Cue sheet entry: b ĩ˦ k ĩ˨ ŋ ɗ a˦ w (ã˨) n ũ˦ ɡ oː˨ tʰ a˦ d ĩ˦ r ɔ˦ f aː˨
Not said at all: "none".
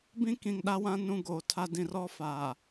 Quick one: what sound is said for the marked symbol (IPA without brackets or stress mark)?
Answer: ã˦